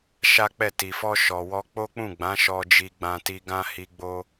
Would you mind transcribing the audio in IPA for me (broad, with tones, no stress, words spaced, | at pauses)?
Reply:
ʃa˦k͡pɛ˦˨ ti˨fɔ˧ʃɔ˨ wɔ˧k͡po˦k͡pũ˦˨ɡ͡bã˨˦ ʃɔ˧ d͡ʒi˧ɡ͡bã˧ ti˧ɡã˦ hi˧ɡ͡bo˦